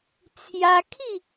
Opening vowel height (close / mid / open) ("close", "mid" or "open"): open